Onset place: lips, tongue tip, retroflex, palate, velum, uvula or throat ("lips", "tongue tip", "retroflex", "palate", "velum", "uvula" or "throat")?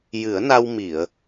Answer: palate